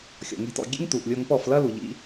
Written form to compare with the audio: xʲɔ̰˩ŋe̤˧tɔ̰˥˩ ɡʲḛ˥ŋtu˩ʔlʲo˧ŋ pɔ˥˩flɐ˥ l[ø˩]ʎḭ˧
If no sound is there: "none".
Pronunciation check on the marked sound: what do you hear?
u˩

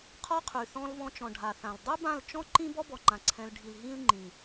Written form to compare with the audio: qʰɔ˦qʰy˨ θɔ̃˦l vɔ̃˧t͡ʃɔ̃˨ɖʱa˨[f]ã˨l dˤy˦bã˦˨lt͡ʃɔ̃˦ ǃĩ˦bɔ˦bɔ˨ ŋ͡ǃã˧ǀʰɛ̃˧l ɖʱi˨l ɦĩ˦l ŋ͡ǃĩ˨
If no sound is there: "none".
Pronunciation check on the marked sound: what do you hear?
θ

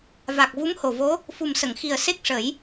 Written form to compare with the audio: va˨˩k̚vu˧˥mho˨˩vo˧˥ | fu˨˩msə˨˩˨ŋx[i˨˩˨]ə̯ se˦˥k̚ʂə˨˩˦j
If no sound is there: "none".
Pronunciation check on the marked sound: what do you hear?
i˨˩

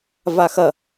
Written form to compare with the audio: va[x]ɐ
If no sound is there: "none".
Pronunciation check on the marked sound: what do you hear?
x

